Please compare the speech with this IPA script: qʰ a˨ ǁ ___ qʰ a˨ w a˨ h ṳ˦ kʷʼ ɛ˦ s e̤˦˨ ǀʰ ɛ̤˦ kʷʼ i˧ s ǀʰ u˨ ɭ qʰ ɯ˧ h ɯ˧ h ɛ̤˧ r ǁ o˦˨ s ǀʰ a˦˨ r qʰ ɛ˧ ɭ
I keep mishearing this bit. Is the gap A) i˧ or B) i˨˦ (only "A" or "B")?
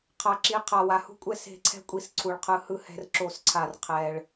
B